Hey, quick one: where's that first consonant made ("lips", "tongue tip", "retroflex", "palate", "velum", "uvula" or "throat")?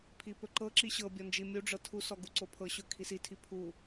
lips